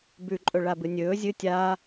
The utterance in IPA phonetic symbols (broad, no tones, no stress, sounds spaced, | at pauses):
b ʉ ǃʼ ɵ ɭ a b ɨ nʲ ɵː zʲ ɨ tʲ aː